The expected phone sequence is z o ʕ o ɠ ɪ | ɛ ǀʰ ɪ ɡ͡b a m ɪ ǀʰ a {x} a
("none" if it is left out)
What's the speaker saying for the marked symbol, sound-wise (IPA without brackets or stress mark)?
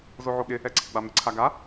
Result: ɡ